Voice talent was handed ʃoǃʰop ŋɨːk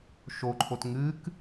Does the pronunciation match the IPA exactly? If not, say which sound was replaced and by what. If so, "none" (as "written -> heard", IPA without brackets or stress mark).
p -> t